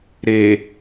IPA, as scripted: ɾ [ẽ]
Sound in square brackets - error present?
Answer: yes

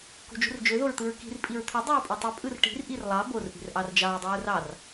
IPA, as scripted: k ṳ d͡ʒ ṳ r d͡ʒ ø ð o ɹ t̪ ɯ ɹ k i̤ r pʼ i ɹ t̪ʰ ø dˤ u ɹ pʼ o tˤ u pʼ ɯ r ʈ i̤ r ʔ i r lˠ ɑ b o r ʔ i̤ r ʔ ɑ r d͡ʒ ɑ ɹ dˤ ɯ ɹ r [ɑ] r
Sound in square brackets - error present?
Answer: no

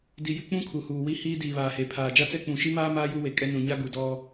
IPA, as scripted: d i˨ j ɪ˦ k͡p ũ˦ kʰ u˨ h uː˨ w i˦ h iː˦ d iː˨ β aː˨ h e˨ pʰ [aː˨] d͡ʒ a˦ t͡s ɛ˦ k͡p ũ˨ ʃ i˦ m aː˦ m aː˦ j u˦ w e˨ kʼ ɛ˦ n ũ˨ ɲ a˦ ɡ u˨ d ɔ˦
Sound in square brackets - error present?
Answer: no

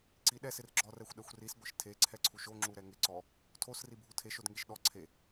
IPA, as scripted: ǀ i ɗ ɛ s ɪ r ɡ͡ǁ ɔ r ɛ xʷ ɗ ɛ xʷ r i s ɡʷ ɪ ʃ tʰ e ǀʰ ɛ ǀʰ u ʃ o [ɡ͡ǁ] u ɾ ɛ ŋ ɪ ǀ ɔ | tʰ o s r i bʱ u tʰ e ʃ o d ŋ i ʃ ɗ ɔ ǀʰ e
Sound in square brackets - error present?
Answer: yes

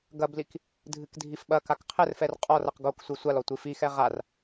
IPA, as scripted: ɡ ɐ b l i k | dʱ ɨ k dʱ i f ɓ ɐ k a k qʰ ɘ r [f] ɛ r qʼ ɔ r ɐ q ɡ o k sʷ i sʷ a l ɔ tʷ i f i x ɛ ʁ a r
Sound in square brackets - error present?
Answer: no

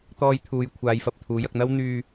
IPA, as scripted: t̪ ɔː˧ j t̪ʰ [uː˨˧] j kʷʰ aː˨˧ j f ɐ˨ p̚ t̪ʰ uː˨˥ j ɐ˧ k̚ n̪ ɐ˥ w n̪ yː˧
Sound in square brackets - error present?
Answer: no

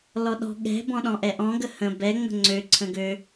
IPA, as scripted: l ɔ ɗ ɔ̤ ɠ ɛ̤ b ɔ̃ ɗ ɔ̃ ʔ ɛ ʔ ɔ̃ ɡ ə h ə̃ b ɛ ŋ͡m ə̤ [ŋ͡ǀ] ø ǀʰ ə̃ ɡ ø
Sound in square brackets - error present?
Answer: no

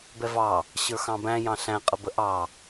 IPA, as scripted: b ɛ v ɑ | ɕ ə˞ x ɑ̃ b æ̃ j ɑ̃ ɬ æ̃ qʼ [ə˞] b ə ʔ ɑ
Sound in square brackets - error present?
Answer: yes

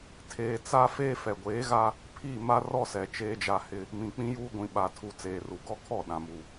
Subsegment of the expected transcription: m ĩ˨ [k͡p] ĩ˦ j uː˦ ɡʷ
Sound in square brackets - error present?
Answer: no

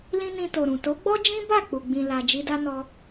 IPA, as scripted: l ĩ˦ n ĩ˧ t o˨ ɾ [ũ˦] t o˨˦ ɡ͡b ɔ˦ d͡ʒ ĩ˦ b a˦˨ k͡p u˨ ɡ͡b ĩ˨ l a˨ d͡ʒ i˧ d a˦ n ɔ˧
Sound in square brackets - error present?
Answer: yes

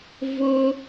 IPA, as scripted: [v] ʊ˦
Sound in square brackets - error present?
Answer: no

